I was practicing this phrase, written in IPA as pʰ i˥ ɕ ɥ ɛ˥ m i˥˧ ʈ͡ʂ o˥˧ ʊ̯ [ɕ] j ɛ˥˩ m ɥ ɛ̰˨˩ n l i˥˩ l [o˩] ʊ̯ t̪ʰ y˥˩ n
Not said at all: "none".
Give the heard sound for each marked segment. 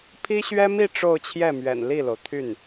t͡ɕʰ, o˩

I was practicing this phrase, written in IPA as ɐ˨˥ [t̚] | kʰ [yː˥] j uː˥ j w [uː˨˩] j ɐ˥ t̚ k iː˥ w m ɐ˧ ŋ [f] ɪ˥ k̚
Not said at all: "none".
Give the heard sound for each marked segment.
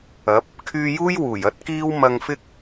p̚, yː˧, uː˨˩, f

